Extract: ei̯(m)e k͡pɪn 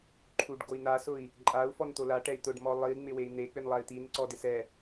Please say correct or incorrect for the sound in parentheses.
incorrect